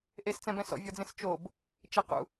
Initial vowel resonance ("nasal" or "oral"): oral